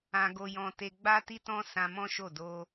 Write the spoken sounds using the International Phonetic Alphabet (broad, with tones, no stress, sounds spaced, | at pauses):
ã˧ ɡ o˧ j ɔ̃˧ t e˧ ɡ͡b a˦ t i˦ t ɔ̃˦ s ã˧ m ɔ̃˦ ʃ o˦˨ d o˧